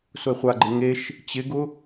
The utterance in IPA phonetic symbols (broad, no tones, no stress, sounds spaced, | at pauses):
s ʊ ɪ̯ χʷ a ɡ͡ǃ ɪ ŋ e ʃ | t͡ɕ ɪ ɡ ʊ